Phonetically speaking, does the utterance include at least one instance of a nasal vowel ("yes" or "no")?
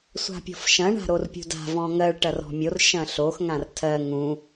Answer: yes